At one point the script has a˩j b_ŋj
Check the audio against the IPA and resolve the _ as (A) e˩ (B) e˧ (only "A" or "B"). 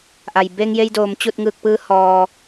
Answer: B